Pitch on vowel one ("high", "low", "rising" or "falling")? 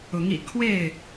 rising